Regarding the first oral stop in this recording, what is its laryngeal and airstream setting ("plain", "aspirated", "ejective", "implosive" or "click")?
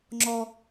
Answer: click